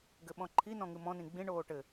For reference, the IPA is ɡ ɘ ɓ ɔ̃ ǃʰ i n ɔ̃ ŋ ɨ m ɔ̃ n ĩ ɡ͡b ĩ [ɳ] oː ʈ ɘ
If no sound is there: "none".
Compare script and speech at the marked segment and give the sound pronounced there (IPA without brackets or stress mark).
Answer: ɳ